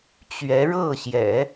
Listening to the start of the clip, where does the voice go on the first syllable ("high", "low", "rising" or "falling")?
rising